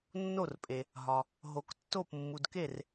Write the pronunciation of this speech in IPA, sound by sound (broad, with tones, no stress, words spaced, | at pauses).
nːo˥˩rpʼe˨ | ɦɒ˨ | ɦo˨k tːo˥˩p mːu˨dke˥˩r